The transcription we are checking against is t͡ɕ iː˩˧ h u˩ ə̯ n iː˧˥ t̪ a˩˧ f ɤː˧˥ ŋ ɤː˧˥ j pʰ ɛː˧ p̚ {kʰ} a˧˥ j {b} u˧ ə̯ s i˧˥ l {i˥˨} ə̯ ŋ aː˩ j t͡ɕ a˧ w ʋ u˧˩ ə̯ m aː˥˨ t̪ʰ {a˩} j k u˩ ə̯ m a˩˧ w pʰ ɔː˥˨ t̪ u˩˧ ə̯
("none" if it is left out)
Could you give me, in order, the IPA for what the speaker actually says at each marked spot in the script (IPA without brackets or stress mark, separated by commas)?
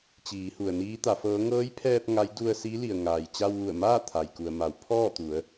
ŋ, d, i˩, a˩